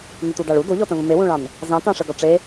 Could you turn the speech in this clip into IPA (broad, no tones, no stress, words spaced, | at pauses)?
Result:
notudɑɭu doʎɔtə̃və̃ mewũɭɑ̃n | zɑ̃tɑ̃ ʂəɡɔ ʈ͡ʂe